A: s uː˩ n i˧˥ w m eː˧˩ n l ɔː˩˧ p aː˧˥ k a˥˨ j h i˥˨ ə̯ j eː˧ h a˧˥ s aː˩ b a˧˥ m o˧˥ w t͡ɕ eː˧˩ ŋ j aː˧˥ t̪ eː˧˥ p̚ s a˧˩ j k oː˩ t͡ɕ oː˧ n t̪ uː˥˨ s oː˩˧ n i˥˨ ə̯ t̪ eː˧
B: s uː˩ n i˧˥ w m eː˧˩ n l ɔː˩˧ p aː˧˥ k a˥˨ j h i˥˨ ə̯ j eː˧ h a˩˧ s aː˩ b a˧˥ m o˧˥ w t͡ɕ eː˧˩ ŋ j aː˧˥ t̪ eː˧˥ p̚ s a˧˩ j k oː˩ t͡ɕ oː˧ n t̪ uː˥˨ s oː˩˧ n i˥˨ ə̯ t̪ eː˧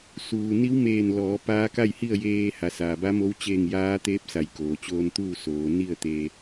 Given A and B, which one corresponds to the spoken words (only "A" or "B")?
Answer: B